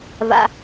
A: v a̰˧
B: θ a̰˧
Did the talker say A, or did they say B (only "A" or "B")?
A